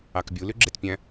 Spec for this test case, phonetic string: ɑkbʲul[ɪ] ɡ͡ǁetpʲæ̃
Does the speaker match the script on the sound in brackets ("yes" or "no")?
no